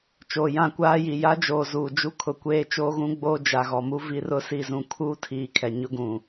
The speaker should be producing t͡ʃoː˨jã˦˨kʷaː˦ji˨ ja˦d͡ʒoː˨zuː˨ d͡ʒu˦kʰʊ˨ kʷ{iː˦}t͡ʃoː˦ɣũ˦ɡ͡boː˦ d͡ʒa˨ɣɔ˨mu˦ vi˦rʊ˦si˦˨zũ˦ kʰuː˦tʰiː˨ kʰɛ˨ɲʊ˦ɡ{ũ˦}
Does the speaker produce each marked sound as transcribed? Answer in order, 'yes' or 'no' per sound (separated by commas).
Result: no, no